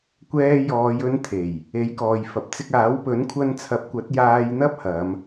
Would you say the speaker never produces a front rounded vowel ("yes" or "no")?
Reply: yes